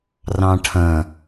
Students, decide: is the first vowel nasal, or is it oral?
nasal